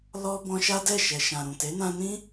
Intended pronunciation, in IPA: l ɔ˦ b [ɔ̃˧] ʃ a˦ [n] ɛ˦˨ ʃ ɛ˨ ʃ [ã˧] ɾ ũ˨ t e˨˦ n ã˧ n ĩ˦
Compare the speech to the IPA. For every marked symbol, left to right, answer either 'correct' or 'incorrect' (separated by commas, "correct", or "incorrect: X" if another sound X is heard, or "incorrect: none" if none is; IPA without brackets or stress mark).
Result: correct, incorrect: d, incorrect: ã˨